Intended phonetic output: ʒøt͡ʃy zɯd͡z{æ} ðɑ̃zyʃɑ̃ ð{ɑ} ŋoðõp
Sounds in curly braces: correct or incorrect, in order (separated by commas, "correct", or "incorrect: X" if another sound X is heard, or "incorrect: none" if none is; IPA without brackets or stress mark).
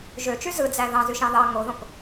correct, correct